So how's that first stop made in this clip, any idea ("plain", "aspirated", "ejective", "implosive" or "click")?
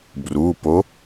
plain